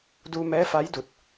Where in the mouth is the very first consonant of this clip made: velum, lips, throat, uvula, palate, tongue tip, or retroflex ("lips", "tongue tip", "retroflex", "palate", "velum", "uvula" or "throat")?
tongue tip